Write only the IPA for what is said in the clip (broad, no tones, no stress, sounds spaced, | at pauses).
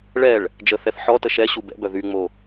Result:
ɭ ɛ ɭ | d͡ʒ ə θ ɛ θ ħ ɔ t ə ʃ ɛ ɕ u b ɛ̰ b œ ð y ŋ͡m o